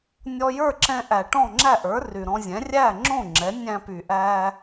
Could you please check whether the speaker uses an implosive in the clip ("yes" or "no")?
no